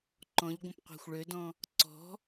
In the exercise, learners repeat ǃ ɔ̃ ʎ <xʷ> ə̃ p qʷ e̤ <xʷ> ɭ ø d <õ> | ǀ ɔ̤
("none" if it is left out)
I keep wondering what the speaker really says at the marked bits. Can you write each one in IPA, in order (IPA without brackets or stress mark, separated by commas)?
ɡʷ, xʷ, ɔ̃